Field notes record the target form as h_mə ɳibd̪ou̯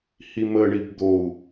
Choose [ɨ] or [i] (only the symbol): i